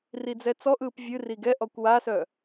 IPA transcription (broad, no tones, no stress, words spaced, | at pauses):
rid͡zɛt͡sɔʔɯːp vʲɨri ɡɛʔɔkʷ wasœ